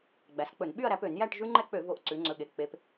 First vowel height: low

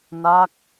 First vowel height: low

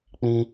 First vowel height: high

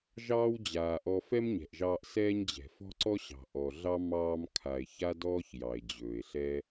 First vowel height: low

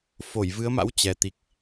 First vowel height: mid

